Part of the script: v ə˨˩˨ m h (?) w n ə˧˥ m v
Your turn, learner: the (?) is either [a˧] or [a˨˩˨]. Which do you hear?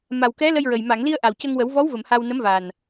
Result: a˧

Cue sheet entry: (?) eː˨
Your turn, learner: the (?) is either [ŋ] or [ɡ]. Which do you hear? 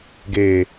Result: ɡ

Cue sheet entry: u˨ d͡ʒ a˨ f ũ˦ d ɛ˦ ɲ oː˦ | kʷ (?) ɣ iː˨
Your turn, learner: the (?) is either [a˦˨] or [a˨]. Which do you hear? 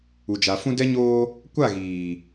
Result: a˦˨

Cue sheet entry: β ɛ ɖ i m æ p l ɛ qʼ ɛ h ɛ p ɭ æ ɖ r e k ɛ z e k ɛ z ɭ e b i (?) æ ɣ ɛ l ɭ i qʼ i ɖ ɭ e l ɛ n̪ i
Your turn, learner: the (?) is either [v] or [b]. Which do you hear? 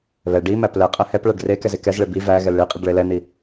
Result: v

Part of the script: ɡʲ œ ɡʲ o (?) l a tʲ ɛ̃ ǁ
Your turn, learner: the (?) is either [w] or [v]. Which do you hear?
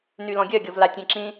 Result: v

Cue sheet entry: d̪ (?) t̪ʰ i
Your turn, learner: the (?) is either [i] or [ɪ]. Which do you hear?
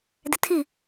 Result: ɪ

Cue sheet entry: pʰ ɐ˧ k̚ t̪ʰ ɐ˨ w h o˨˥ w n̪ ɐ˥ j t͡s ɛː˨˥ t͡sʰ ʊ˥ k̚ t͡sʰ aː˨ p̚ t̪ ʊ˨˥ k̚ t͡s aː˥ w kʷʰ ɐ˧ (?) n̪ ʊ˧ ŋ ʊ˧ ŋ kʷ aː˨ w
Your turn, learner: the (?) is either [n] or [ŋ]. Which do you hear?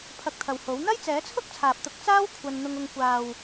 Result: n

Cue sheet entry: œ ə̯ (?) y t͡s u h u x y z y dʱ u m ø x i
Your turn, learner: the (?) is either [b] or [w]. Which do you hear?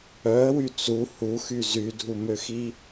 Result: w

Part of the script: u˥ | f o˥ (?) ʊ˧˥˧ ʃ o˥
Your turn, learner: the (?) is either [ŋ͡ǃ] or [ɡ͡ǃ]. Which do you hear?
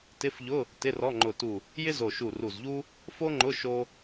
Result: ŋ͡ǃ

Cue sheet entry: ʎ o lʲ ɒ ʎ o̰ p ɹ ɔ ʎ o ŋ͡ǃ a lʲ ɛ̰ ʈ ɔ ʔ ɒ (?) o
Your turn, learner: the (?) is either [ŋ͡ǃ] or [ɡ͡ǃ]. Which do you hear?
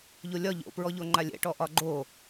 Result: ɡ͡ǃ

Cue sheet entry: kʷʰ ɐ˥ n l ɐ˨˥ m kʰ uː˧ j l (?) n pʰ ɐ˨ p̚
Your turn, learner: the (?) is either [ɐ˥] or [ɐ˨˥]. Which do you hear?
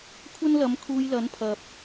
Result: ɐ˨˥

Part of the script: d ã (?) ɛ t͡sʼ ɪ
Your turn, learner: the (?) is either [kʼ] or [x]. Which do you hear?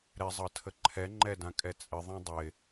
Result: kʼ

